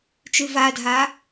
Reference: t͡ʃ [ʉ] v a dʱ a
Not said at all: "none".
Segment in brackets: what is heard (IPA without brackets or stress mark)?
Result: ʉ